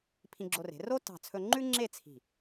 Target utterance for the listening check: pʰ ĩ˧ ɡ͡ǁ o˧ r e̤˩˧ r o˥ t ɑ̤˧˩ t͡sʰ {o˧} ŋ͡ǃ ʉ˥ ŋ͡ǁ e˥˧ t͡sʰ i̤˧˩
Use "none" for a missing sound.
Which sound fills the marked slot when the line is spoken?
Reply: ɵ˧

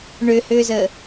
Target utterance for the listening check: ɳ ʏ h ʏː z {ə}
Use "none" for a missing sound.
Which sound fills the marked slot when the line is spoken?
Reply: ə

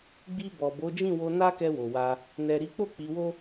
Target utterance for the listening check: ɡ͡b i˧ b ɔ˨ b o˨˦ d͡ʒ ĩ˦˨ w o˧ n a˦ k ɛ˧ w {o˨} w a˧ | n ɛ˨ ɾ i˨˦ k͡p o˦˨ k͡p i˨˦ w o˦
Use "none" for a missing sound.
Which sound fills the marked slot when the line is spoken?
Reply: o˨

